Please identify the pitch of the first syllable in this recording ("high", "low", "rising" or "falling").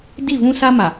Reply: falling